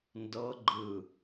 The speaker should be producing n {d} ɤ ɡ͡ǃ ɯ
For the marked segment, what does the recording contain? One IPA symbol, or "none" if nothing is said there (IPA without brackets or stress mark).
d